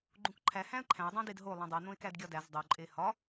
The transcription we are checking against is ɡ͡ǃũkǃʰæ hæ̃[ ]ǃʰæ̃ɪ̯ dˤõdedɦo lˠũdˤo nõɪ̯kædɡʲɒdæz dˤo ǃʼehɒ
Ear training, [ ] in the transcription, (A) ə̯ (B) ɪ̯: A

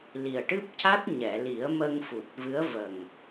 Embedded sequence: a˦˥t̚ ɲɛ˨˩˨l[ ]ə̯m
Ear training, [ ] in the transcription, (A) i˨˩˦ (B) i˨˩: A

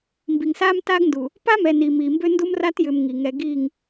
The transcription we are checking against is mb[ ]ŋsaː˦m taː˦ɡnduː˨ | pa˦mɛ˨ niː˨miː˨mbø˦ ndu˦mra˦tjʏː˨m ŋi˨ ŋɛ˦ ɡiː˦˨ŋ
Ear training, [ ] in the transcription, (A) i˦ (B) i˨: B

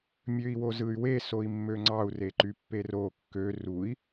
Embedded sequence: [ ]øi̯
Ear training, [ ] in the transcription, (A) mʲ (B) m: A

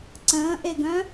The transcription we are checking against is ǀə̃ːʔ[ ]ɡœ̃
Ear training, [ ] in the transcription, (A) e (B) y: A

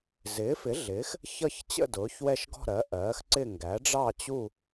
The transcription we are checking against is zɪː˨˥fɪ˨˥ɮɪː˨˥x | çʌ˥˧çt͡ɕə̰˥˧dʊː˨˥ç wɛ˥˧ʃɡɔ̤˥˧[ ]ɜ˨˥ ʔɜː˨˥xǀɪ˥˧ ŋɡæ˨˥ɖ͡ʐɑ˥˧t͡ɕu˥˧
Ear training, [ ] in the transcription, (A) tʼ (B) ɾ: B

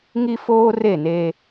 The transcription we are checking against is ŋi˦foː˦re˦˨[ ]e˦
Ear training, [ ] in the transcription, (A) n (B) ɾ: A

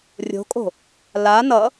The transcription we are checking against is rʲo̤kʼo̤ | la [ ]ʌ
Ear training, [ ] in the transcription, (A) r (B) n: B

